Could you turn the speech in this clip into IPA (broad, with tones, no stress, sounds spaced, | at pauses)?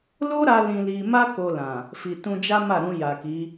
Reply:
l o˦ ɾ a˧ l ĩ˧ l i˧ m a˦ k o˧ l ã˨ | f i˨ t ũ˧ d͡ʒ a˦ m a˦˨ ɾ ũ˧ j a˨ k i˨˦